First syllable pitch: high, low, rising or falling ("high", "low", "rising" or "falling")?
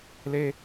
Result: high